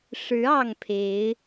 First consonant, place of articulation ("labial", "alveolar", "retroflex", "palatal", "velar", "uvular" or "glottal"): retroflex